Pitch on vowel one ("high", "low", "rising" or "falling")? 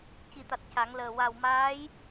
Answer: low